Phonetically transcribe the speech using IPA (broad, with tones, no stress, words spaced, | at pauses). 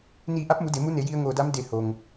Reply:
niː˧˩ʔa˧˥p̚mu˩˧ de˩˧mu˧˥ ne˩˧ji˧ə̯ŋoː˧˩da˧˥m de˧˩ho˩ŋ